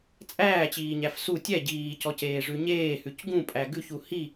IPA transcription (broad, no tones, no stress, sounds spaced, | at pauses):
t͡sʼ æː t͡ɕ iː ɲ æ f s u tʲ ɛ ɟ iː c ɔ c eː ʐ ʉ ɲ eː h ʉ c ɡ ũ pʼ æ ɡ ʉ ç u h i